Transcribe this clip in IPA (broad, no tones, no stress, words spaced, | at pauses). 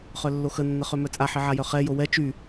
χœlːoxə nːəχømœt͡sʼa ħiʕajœχɛ jowɛ t͡ʃy